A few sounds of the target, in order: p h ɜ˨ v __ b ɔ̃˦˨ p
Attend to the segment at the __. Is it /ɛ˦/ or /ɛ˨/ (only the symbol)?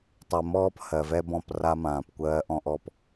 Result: ɛ˦